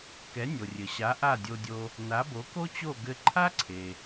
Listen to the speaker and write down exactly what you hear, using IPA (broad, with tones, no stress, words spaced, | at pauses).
kɛ˩˥nʲo˩rʲɘ˩ɕa˩˥ ʔa˥˩dʲo˧dʲo˧ | na˩˥bo˩˥ko˥t͡ɕo˥˩ ɡɘ˧ǃʰa˥ǀʰe˩